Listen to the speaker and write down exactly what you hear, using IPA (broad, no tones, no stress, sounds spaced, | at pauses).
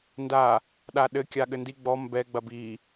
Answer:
n d a | ɗ a ɗ ɘ kʲ a ɠ ɘ n d i ɡ͡b ɔ m b ɛ ɡ͡b ɐ b i